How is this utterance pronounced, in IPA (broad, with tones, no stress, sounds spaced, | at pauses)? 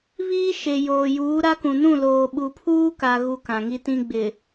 β iː˦ ʃ e˨ j oː˨ j uː˨˦ ɾ a˦ k ũ˨ n ũ˦˨ l oː˨ ɓ u˨ pʰ uː˦ k a˦ ɣ u˦ k ã˨ ŋ i˦ t ĩ˦ ɡ͡b ɪ˨